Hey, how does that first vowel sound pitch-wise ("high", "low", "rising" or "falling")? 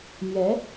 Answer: rising